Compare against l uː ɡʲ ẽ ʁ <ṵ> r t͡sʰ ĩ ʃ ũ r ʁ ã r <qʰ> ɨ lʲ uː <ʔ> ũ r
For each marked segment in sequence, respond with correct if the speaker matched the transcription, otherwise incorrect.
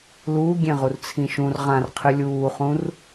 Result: incorrect, correct, incorrect

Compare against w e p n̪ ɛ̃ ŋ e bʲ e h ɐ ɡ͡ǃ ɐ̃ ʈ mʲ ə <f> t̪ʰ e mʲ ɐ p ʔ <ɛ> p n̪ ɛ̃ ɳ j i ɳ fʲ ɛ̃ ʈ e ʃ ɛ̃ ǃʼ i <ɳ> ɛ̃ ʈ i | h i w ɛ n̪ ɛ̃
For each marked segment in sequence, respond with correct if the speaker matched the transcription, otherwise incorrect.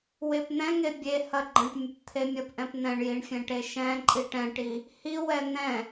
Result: incorrect, incorrect, incorrect

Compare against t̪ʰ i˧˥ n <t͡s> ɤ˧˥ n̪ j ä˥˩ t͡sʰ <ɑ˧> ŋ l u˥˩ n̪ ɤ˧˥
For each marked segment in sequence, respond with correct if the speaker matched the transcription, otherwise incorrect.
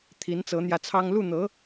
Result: correct, incorrect

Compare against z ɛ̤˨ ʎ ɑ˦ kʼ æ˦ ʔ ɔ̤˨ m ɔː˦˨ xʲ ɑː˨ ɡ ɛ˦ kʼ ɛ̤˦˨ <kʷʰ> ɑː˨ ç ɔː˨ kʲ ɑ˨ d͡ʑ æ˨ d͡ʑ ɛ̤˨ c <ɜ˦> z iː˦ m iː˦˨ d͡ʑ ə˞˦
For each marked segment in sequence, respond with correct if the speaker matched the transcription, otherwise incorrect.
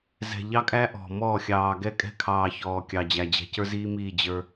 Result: incorrect, incorrect

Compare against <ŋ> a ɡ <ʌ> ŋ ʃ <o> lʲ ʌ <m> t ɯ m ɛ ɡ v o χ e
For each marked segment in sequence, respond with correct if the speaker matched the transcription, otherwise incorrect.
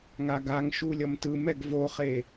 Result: correct, incorrect, incorrect, correct

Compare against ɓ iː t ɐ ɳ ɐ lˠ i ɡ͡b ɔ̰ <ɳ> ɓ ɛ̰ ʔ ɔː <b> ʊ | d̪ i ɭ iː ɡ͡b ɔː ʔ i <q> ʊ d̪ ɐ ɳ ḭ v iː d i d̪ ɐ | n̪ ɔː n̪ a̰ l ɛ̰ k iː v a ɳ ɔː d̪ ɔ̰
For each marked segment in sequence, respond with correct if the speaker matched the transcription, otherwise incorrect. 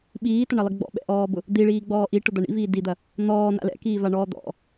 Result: incorrect, correct, incorrect

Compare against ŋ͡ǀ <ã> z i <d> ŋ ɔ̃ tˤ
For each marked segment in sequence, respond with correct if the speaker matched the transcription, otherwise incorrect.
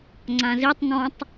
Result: correct, incorrect

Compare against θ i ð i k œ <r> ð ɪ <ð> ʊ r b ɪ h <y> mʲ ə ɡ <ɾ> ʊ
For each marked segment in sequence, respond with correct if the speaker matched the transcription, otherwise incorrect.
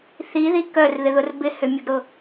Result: correct, correct, incorrect, correct

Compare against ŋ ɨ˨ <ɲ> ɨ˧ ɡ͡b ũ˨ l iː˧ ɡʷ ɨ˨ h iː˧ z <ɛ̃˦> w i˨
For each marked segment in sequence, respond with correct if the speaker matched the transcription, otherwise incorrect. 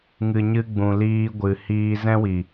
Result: correct, correct

